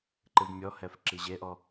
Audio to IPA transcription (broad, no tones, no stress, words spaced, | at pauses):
ǃɨvmʲɔhɛf ǁiʑeʔɔ